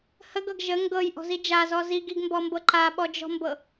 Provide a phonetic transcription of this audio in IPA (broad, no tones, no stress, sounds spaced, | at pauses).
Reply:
h ə ɡ ɤ ɡ ʒ ə ŋ ɡ ɤ j ʔ ɔ̤ z i d͡ʒ a z ɔ z i ɡ i ɡ m b ɔ m b ɤ ǃ a ɓ ɔ d͡ʒ ɔ̤ m b ɤ